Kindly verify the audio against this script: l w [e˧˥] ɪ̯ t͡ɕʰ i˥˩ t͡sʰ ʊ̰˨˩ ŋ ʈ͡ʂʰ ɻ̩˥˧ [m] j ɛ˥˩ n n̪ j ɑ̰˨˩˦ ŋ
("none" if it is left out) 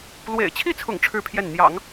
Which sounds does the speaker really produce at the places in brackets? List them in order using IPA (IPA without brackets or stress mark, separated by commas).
ḛ˨˩, pʰ